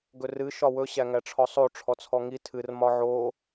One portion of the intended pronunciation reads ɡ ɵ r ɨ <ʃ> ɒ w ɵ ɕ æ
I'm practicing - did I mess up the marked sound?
no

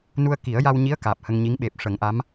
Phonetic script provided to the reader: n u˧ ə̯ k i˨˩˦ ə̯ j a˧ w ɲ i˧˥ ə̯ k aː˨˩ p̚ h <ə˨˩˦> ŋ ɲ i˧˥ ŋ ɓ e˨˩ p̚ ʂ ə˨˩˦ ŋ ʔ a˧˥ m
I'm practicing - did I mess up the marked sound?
yes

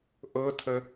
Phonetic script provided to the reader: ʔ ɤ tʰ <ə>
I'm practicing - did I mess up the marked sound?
no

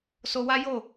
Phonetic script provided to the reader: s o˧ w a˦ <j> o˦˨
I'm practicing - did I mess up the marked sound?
no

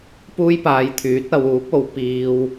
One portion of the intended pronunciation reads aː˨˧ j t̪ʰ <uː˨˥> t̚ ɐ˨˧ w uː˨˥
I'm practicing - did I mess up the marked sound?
yes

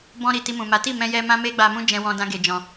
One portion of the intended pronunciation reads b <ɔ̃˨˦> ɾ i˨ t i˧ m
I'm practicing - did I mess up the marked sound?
yes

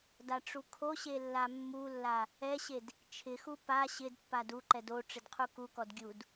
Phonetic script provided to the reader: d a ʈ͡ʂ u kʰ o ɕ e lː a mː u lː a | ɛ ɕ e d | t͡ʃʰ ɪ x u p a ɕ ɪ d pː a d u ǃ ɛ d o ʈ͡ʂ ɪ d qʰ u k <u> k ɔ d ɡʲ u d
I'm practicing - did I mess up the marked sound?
no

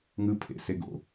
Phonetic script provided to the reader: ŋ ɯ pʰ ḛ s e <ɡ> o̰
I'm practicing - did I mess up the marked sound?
no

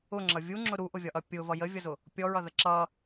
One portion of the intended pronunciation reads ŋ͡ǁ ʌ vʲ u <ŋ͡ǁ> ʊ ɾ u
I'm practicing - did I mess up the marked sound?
no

